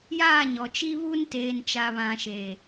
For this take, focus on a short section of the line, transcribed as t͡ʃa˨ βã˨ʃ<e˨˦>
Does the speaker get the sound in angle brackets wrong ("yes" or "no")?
yes